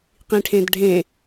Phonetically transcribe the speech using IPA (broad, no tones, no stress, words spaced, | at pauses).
qĩʈʰẽdɖʱẽ